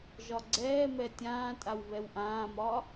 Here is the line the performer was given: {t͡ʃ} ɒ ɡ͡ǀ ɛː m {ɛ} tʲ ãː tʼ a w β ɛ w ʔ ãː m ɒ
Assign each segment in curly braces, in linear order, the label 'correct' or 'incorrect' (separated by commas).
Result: incorrect, correct